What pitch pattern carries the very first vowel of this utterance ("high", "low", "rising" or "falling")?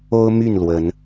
high